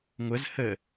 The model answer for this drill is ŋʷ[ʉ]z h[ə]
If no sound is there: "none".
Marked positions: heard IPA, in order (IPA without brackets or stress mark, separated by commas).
ə, ə